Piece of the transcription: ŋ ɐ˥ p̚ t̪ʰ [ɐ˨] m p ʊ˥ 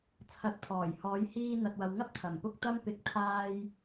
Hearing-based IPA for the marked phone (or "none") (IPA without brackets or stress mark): ɐ˨˩